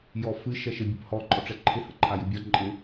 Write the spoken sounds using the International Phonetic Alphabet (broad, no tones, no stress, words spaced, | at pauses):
jɔfɨ ʃɛʃɪ bʲɨphɔ ǃʼɔʈ͡ʂɛǃʰɪ həǃʰajɨbʲɒ ǃʼɪ